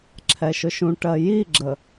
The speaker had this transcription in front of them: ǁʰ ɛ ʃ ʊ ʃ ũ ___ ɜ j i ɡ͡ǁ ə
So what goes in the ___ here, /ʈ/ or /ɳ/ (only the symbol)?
ʈ